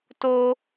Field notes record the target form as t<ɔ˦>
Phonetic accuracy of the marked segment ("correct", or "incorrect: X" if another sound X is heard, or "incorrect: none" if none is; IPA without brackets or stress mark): incorrect: o˦